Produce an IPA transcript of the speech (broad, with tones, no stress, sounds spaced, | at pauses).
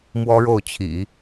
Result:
m w ɔ˥ ɻ o˥˩ ʊ̯ t͡ɕʰ ḭ˨˩˦